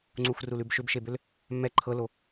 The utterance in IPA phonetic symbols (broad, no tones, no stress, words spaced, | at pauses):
ŋ͡ǀuxrulʉb ʃʏbʃebʏl | mːɛ ǃʰɤlo